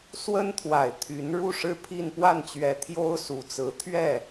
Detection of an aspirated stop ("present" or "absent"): present